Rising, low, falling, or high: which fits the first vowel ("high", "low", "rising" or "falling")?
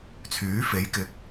rising